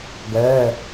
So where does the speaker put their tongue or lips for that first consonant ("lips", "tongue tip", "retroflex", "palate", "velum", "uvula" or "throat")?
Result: velum